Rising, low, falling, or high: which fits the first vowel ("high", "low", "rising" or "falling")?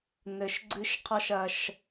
low